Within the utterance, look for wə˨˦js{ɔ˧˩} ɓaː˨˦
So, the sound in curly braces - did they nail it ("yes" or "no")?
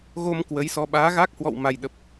no